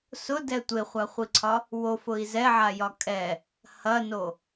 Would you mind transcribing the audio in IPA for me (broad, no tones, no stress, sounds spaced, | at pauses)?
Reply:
s ʊ d ɛ tʷ e χʷ a χʷ i ǀʰ ɒ | w o f ʊ i̯ z ɛ ʕ a j ɒ kʼ ɛ | h ɐ n o